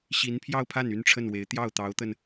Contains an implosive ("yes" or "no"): no